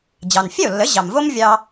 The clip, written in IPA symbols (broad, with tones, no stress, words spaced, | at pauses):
d͡ʑɑ˩nfʲɛ˥˩o̯lːə˩˥ ʑɑ˩mvo˥mvʲɑ˧